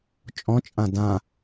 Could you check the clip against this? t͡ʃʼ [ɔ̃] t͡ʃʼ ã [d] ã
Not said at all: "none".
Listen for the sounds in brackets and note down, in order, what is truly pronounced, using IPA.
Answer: ɔ̃, d

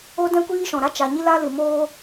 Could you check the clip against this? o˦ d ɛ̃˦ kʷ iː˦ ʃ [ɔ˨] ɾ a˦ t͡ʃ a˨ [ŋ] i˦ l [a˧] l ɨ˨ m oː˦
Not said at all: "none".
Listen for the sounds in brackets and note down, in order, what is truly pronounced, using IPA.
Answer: ɔ̃˨, ɲ, a˧

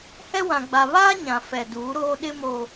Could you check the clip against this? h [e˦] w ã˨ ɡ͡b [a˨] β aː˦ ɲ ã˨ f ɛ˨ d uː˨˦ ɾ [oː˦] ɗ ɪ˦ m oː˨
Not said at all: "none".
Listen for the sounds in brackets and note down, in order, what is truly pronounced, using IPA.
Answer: ɛ˦, a˨, oː˦

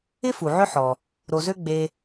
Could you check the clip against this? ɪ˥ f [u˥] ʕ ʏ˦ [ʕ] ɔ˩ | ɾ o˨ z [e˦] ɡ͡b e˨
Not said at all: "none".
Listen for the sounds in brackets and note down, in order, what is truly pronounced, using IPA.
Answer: u˩, ħ, ø˦

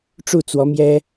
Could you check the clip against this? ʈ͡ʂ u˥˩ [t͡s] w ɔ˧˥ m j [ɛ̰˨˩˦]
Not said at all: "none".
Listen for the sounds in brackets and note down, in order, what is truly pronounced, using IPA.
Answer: t͡s, ɛ˥

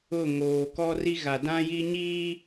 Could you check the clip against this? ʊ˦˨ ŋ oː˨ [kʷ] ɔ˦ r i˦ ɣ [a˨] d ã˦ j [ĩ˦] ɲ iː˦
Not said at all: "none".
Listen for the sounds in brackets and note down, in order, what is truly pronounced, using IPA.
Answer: k, a˨, i˦

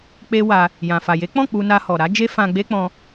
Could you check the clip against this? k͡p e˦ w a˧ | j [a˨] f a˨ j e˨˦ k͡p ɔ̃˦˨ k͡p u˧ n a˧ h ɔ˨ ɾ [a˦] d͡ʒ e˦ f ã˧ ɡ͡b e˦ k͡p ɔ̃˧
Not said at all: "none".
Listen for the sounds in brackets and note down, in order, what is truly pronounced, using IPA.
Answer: ã˨, a˨˦

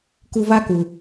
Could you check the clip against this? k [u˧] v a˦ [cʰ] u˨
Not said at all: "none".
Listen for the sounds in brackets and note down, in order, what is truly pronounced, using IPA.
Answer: u˧, k

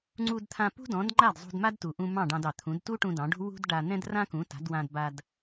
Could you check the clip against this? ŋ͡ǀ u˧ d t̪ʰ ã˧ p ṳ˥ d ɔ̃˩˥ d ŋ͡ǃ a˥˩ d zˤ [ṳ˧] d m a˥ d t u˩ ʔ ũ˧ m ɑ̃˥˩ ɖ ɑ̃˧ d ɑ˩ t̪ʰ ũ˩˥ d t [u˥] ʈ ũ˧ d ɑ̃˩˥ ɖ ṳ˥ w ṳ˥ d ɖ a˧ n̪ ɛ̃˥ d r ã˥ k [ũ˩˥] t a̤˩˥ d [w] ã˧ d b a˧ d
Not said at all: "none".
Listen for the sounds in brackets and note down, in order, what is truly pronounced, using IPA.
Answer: ṳ˧, u˥, ũ˩˥, w

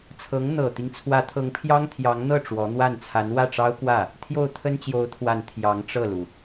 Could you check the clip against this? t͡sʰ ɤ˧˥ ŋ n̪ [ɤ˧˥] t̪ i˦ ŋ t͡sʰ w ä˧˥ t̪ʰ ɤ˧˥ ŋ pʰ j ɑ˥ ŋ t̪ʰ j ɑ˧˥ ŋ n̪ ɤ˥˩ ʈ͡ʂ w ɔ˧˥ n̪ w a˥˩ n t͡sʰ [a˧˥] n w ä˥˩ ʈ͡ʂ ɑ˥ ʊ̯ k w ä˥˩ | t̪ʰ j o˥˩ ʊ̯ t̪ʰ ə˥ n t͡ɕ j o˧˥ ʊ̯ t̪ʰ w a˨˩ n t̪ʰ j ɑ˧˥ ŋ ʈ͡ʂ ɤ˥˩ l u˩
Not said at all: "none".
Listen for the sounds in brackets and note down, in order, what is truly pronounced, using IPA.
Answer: ɤ˨˩, a˧˥

